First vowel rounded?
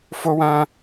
yes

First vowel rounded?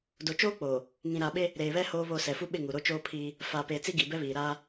yes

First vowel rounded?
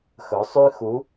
yes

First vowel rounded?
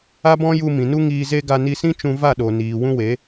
no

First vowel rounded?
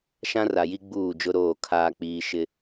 no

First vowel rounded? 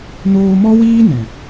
yes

